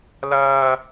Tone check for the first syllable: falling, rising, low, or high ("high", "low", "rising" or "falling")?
high